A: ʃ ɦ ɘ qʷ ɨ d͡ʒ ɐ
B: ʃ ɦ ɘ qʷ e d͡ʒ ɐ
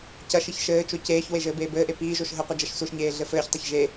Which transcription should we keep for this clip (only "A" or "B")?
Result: A